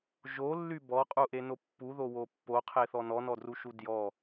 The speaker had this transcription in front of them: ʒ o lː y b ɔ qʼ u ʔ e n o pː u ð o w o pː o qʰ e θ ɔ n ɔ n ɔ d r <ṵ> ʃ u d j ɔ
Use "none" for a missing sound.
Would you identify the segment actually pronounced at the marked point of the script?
u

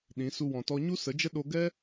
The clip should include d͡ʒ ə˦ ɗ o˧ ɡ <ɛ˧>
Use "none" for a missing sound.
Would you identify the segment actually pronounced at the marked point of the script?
ɛ˦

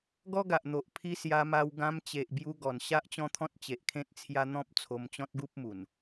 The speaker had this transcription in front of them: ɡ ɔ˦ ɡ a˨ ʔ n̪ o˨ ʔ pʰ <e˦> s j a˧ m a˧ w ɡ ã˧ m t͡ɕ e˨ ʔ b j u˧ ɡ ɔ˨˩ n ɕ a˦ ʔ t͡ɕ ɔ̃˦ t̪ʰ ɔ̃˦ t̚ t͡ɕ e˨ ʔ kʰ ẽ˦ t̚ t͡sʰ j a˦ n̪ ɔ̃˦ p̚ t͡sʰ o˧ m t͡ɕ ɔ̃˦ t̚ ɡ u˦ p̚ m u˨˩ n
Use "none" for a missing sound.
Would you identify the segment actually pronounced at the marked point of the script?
i˦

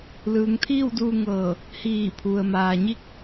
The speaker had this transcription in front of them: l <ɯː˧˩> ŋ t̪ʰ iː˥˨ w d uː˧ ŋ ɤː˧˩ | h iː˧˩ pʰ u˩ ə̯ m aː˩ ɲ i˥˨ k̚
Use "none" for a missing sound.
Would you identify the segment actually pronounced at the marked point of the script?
ɯː˩˧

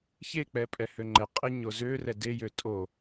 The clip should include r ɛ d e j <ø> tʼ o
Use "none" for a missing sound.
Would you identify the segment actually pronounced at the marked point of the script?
ø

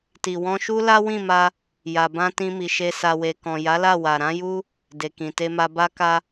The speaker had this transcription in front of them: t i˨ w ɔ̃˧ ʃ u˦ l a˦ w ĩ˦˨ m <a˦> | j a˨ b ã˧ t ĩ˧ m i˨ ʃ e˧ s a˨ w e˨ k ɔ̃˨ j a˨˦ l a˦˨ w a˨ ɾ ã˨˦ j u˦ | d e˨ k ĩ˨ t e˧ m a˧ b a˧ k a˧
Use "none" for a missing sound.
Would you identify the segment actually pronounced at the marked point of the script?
a˧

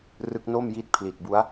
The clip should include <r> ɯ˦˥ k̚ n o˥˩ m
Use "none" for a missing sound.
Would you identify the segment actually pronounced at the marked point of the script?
r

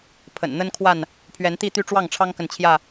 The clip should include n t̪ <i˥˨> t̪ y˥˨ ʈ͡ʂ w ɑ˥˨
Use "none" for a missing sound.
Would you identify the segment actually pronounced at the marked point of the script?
i˥˨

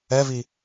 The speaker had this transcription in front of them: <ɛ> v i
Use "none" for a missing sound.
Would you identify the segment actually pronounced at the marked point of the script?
ɛ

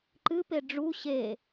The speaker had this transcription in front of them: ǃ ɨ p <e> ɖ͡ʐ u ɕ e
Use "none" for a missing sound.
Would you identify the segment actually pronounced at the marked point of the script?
e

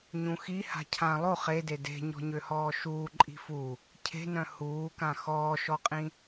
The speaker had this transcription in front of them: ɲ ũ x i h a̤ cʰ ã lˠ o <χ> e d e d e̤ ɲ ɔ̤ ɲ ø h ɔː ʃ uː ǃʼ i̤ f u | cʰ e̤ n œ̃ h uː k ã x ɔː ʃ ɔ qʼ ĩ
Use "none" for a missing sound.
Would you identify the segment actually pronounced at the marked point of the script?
χ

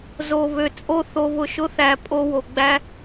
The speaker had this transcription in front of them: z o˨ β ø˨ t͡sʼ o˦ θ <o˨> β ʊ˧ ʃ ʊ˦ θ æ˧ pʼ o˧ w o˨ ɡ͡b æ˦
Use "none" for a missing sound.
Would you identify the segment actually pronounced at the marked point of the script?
o˧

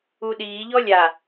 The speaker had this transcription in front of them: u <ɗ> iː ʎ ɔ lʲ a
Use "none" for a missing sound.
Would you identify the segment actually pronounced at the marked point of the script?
ɗ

